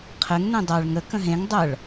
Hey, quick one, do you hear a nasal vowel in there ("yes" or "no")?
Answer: yes